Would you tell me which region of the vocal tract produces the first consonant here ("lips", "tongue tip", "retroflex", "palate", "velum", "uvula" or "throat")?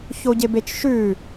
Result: palate